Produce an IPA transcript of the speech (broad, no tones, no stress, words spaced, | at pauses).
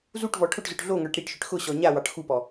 zuʈvɔ ʈʰʊʈzʊʈ ɮoŋə˞ʈ ɾiʈʃʏʈ xʊɕɔ ɲawɑʈ xupɔ